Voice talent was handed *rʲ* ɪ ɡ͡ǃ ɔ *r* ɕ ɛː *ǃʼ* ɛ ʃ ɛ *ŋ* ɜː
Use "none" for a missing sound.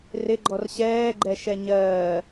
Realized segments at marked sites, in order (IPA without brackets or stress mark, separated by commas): r, r, ɡ͡ǃ, ɲ